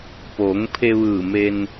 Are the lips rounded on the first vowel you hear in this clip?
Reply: yes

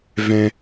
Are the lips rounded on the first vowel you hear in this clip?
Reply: no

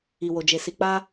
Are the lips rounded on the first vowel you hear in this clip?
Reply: no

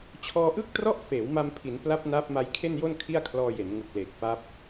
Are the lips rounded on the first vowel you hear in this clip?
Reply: yes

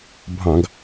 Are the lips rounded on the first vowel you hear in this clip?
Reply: no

